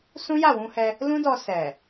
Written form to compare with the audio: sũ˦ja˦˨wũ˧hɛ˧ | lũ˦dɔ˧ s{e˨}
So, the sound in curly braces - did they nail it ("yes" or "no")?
no